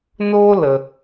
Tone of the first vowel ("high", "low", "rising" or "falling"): high